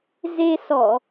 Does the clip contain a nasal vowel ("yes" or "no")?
no